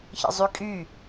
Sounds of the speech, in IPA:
ç ə̰ zˤ y kʼ y

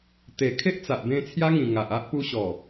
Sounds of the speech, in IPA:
t̪ e˨˩ kʰ e˦ ʔ t͡s a˨ ʔ b ẽ˧ t͡sʰ j a˦ ŋ ĩ˨˩ ŋ a˨ ʔ a˦ ʔ p u˦ ɕ ɔ˨˩

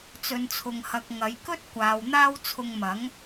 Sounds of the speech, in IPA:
t͡s ɵ˨ n t͡sʰ ʊ˨ ŋ h ɐ˨ k̚ ŋ ɐ˨˧ j k ɵ˥ t̚ kʷ aː˨ w n̪ aː˥ w t͡sʰ ʊ˧ ŋ m ɐ˨˥ ŋ

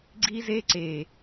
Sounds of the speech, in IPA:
ɡ͡ǀ i˦ z e˦ ǀ e˨

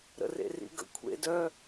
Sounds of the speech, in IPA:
ɾ ə̰ r ḛ r ḭ ɡ ə̰ kʷʰ ḛ d œ

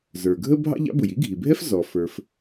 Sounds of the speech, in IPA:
z ə˞˩ ɡʱ ə˥ bʱ ɑ̰˥ ʎ ɑ̰˥ b ʊ˩ j i˥ ɡʱ i˩ bʱ ɛ˥ f z ɔ˩ f ə˞˩ f

